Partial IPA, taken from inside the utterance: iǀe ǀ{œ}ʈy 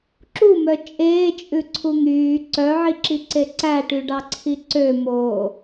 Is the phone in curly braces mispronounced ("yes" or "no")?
yes